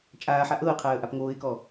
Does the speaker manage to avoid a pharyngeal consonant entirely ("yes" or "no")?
no